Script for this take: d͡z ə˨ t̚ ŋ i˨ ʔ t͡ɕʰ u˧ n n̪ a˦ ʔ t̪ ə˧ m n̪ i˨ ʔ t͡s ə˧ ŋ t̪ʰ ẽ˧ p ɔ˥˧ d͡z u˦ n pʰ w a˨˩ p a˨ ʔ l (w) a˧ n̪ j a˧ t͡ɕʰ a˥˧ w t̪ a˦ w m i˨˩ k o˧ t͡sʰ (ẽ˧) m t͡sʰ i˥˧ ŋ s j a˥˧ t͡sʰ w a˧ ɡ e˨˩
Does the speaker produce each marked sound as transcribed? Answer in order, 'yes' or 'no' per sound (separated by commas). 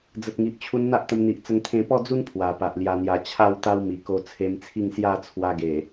no, no